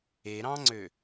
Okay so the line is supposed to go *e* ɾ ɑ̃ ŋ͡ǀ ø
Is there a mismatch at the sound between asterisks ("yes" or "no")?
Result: no